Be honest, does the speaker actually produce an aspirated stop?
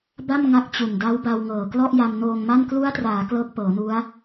no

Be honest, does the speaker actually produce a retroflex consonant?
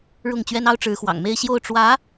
yes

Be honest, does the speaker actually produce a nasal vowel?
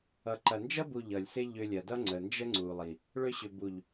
no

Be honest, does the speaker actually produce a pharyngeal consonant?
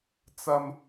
no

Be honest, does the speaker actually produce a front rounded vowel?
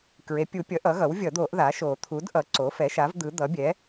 no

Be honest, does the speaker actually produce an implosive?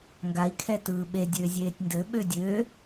yes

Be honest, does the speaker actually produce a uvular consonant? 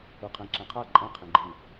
yes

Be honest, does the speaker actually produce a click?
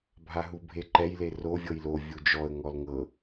yes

